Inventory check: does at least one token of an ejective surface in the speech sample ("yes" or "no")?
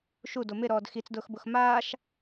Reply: no